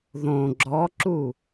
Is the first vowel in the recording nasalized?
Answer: yes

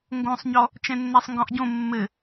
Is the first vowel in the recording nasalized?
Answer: yes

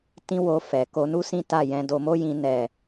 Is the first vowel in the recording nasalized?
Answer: yes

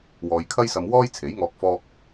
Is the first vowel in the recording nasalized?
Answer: no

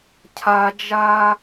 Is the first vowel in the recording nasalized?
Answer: no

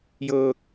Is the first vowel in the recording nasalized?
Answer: no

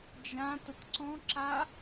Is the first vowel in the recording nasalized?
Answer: yes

